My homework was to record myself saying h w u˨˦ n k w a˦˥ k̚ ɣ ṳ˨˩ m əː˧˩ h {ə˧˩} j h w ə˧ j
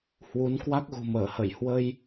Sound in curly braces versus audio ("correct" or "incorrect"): correct